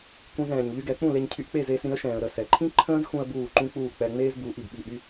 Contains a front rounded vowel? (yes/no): yes